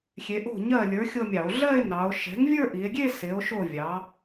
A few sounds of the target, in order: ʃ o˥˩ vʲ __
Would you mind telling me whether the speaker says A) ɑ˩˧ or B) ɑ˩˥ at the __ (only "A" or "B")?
B